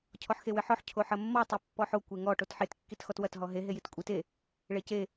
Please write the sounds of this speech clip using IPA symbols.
cʰ ɔ ħ x e w ɘ ħ ɔ ħ cʰ o ħ ɐ mː ɔ tˤ o pː ɔ ħ o kʷ e ŋ ɔ ʈ o t ħ e t kː i t x ɔ t w ɐ t ɦ ɔ ɦ e ɦ e j i t kʷʼ i t e | ɭ e c e

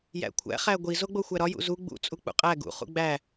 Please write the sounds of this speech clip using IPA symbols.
j æ̰ kʷʰ æ̰ χ æ ɡʷ i z o ɡ͡b o xʷ æ ɾ ɒ j ṵ z u ɡ͡b ṵ t͡sʼ u k͡p ṵ qʼ æ ɡ ṵ χ ṵ ɡ͡b æ

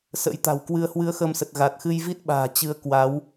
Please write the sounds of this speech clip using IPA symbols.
s ə̰˧˥ j t̪ a̤˨˩ w k w ɨ˧ ə̯ h w ɨ˧ ə̯ x ə˧ m s ə˨˩ t̚ ɣ a˨˩ t̚ x ɨ˧ j v i˦˥ t̚ ɓ a̤ː˨˩ t͡ɕ ɨ˨˦ ə̯ k w a˨˦ w

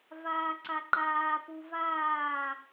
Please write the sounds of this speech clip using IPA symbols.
v aː ǀ a ǃ aː p u v aː

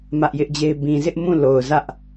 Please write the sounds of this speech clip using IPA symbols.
m ä˦ ʔ j ɪ˦ ʔ d͡ʑ e˦ ɪ̯ b ĩ˨ z ɪ˦ ʔ m ũ˦˨ l o˨ ʊ̯ z ä˦ ʔ

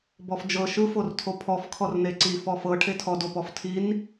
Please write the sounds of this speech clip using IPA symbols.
b ɔ f d͡ʒ ɤ ʃ ɯ f o r tʰ o pʰ ɔ f kʰ ɔ r n e ǀ i f ɔ f ɤ ʈʰ e tʰ ɔ d o p ɔ f tʰ i n

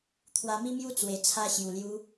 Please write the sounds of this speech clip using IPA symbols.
t̪ʰ w a˧ m i˦ m j u˦ t͡s w e˨˩ t͡sʰ a˧ ɕ j u˨˩ l j u˧

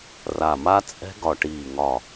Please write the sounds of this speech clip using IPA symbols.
r a˧˩ m a˦˥ t͡sʼ ɛ̤˦˥ ɡ ɒ˧˩ ʈ iː˧˩ ŋ ɒ˧˩

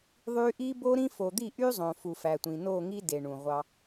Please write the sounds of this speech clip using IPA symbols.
ðˤ y˦ ʔ i˦ b o˦ ɾ ĩ˦ f o˨ d̪ i˦˨ ʔ y˦ zˤ õ˨ f u˨ f æ˨ tʷ ĩ˨ n o˦˨ ŋ i˦ d e˨ ɳ ũ˨ ʁʷ ɑ˦

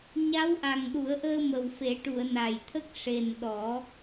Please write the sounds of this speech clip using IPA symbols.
ɲ a˧˥ w ʔ a˨˩ ŋ ɗ u˨˩˦ ə̯ ʔ əː˧ m ə˨˩ w f e˨˩˦ ʈ u˨˩˨ ə̯ n a˨˩ j t̪ʰ ə˦˥ k̚ ʂ e˨˩ n ɗ ɔ˨˩˦

